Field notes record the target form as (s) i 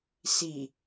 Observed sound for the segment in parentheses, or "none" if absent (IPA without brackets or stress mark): s